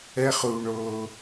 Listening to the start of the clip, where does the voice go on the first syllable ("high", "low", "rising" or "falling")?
high